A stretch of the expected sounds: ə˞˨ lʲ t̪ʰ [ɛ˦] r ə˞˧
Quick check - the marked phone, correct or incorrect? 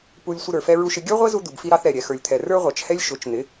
incorrect